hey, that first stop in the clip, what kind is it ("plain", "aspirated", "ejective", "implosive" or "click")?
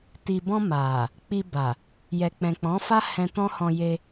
plain